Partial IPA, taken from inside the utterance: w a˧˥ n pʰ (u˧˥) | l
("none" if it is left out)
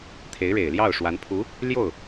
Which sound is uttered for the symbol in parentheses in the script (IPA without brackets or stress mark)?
u˧˥